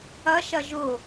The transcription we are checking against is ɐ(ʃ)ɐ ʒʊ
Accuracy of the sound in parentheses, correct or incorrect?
correct